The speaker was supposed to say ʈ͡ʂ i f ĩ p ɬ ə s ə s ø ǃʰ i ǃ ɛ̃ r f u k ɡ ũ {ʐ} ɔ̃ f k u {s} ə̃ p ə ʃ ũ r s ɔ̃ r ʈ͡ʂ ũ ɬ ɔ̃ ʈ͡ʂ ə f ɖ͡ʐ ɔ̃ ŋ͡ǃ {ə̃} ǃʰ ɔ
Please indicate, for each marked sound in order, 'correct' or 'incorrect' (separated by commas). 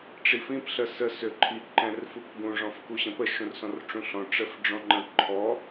correct, incorrect, correct